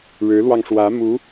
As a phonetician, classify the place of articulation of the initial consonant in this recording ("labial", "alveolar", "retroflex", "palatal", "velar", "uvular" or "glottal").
retroflex